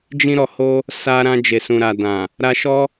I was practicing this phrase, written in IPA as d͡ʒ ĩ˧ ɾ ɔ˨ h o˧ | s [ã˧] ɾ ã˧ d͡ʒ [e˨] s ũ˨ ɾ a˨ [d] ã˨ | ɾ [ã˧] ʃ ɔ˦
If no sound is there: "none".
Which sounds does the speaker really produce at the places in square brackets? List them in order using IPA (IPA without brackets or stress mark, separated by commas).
a˧, e˨, d, a˧